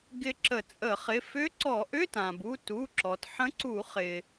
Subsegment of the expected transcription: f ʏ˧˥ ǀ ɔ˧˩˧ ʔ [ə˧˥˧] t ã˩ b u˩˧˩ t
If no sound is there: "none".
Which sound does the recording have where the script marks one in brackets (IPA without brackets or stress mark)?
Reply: ʏ˧˥˧